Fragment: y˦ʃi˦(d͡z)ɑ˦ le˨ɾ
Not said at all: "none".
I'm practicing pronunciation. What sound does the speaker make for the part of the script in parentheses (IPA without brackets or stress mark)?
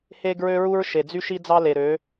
d͡z